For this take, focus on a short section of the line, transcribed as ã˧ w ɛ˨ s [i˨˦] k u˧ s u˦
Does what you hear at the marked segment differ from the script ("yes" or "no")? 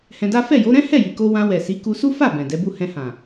no